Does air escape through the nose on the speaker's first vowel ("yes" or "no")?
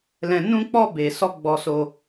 yes